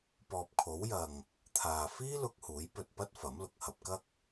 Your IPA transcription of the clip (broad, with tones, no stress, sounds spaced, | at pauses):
p ɔː˨ p̚ kʰ o˨˥ w j ɐ˨ ŋ | t̪ʰ aː˨ f iː˥ l ʊ˧ k̚ h uː˨˥ j p ɵ˧ t̚ p ɐ˥ t̚ f ɐ˨˥ m l ʊ˨ k̚ h ɐ˧ p̚ k ɐ˥ k̚